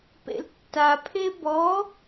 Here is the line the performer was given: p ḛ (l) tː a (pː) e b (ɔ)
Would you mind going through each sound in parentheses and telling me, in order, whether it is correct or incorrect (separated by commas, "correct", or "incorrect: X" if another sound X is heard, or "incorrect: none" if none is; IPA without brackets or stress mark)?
correct, incorrect: pʰ, correct